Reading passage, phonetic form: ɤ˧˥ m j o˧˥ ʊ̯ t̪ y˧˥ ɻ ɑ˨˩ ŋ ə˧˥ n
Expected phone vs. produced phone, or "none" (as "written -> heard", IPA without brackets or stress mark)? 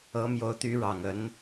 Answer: none